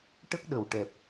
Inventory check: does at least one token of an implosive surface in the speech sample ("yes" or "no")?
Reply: yes